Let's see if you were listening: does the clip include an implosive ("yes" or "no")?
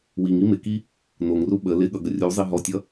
yes